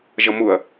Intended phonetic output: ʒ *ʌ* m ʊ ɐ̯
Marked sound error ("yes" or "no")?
no